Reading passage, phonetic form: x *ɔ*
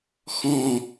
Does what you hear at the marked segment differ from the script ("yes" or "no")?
yes